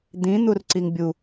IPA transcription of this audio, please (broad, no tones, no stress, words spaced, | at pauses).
d̪ĩ n̪urǀiŋbʲu